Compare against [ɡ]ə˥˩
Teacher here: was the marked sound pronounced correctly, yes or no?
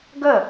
yes